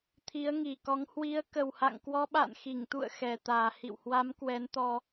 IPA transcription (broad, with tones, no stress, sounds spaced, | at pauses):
t̪ʰ i˨˦ ə̯ ŋ i˨˩ k ɔ˨˦ ŋ h w i˨˦ ə̯ k ə˨˩ w h a̰˧˨ ŋ k w ɔ˧ ɓ a̰˧˨ n x i˧˩ ŋ t̪ ṵ˧˨ ə̯ x ɛ˨˩ t̪ aː˨˩ h ḭ˧˨ w h w a˨˦ m k w ɛ˨˦ n t̪ ɔ˧